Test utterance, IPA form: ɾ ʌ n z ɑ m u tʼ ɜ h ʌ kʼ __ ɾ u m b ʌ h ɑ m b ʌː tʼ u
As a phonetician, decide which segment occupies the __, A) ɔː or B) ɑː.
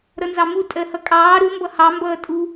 B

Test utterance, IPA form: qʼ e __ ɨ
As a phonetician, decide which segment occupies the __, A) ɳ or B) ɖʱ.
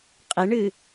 A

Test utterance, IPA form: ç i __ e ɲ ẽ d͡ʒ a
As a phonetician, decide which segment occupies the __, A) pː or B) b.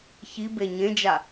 B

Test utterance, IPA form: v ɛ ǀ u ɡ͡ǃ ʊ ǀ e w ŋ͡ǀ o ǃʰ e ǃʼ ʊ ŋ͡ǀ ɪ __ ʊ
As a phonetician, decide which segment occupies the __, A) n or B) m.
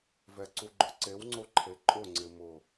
B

